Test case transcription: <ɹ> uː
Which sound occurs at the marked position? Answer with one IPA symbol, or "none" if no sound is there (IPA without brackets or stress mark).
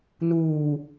n